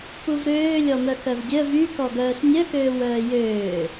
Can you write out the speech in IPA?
puvɾøː lʲɔmœkœvdʲœ vykɔɡœːs nʲœkøːw œːjøː

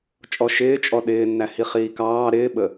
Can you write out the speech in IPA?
t͡ʃʼɔʃɪːt͡ʃʼɔ ɗɪːnːæhi χiːkɑː ɾɪːɓə

